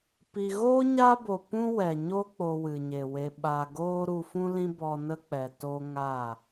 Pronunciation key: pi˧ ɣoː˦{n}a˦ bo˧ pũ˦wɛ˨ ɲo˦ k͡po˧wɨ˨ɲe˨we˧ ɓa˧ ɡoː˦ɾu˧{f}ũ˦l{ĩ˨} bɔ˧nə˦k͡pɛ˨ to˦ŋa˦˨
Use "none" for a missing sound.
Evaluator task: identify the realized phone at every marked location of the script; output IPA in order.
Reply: ɲ, f, ĩ˦

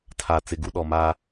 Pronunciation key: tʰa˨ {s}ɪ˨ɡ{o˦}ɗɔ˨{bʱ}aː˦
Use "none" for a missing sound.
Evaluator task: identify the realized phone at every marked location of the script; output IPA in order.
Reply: t͡s, u˦, m

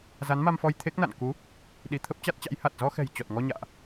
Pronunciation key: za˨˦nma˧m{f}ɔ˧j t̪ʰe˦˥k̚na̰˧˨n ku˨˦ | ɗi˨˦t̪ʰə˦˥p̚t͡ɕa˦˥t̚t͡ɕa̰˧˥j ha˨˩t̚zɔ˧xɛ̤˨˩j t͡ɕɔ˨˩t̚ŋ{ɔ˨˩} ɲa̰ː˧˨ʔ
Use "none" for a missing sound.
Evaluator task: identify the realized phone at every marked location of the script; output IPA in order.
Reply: f, ɔ˧

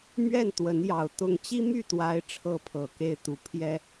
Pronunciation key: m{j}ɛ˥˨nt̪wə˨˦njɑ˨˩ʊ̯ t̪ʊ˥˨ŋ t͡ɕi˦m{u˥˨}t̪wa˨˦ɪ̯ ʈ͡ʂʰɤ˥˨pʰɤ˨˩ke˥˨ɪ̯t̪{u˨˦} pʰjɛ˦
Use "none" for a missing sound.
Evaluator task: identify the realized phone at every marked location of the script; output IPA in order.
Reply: ɥ, y˥˨, u˨˦

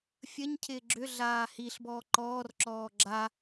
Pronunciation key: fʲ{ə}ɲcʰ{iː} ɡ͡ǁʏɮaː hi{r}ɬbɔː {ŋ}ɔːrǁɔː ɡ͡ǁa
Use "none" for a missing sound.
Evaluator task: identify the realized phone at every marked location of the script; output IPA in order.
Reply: ə, ɪː, none, ǃ

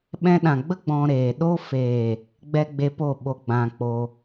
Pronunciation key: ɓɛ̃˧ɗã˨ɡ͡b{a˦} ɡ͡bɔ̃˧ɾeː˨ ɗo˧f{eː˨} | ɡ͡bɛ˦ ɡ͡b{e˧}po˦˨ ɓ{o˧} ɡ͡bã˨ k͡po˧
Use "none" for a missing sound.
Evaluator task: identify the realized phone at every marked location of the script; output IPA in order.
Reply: ə˦, eː˨, e˧, o˧

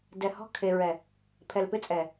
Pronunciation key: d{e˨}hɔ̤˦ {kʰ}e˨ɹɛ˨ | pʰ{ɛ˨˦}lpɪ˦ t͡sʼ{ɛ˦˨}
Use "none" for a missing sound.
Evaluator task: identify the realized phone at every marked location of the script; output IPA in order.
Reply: ɛ˨, kʰ, ɛ˨, ɛ˨

